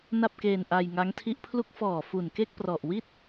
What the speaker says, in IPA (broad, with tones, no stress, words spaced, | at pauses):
na˥˩p̚keː˧nʔa˧jŋa˦˥ŋ tʰi˦˥ʔpʰlu˥˩k̚ fɔː˨˩ fu˨˩nke˥˩k̚prɔ˨˩ʔ wi˥˩t̚